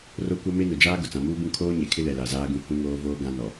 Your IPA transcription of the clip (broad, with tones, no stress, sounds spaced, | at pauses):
r o˦ kʷ a˦ m e˦ n ʊ˨ d͡ʒ aː˦ ɡ ʊ˨ t͡s ã˨ m uː˦ b ũ˦ kʰ oː˦ ɲ e˨ kʰ ɪ˦ l ɛ˨ l a˨ z aː˦ ɡ ũ˦ h ũ˦ ŋ oː˦ v oː˦ ɡ ã˦ n ɔ˨